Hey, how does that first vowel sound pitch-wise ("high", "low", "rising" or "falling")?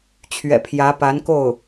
low